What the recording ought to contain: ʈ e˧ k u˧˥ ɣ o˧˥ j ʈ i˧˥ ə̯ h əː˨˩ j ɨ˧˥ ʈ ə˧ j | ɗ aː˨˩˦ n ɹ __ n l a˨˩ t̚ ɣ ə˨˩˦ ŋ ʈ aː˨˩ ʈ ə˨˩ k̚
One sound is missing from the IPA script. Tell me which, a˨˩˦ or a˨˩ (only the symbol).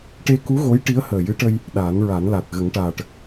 a˨˩˦